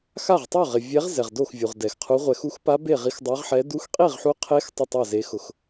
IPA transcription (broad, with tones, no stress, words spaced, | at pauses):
xa˥˨ʁtˤo˥˨ ʁɪ˨vʲɛ˧˥ʁ zɛ˨ʁdo˥˨x vʲu˨ʁdɛ˨xqʰu˧˥ ʁʷɛ˨xu˧˥xpa˧˥ be˥˨ʁi˧˥xdˤa˧˥ʁħɛ˧˥ du˧˥xqʼi˥˨ʁħu˧˥qʰe˧˥x tˤʊ˥˨tˤa˥˨ze˧˥ xʊ˨x